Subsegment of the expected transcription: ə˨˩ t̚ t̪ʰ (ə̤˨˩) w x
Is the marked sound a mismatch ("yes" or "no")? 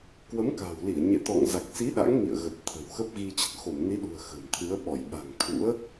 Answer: no